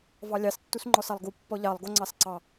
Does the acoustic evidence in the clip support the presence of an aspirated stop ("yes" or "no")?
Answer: no